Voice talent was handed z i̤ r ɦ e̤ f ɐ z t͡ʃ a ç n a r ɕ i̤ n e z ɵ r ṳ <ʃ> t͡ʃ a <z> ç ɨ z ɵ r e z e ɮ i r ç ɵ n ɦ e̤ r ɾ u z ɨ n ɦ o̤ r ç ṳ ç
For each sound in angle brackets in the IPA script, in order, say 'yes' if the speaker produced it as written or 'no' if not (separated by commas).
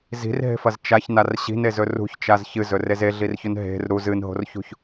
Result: no, yes